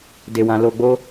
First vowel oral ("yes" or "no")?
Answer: yes